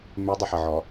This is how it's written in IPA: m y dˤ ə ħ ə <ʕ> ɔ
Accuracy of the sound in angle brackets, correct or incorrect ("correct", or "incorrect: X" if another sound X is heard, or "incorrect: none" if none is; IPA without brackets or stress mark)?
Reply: correct